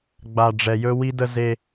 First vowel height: low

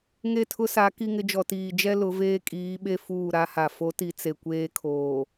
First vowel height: mid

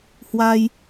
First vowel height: low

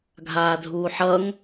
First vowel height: low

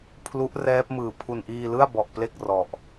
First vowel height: high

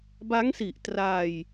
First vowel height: low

